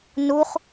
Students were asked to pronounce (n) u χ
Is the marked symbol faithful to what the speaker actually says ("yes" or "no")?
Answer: yes